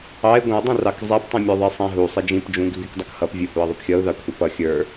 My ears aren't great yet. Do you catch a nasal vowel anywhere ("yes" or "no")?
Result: yes